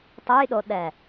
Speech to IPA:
tˤujɗoɗɛ

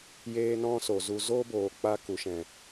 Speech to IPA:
jeː˦nɔ̃˦so˨zu˧ zo˦boː˨ k͡pa˦ku˨ʃɛ̃˨

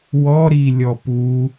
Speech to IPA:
wɔɾilʲɔ pu

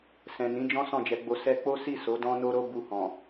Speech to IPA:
sɛ̃˨nĩ˨˦d͡ʒɔ̃˦ sɔ̃˦˨d͡ʒɛ˨˦ɡ͡bo˧ sɛ˧k͡po˦si˦˨ so˨˦dɔ̃˦no˦ ɾo˦bu˧hɔ̃˨

